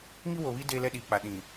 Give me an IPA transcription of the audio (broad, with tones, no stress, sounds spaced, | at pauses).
ŋ i˦ w o˨ β i˦ d eː˦ l ɛ˦ ɗ iː˨ k͡p a˨ ɗ ĩ˨